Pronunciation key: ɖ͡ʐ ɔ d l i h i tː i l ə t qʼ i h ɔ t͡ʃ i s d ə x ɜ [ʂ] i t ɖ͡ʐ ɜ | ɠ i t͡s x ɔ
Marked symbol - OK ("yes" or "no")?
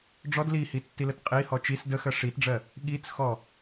yes